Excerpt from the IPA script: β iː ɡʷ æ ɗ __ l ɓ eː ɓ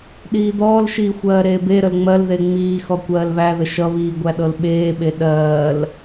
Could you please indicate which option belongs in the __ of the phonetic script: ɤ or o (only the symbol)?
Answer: ɤ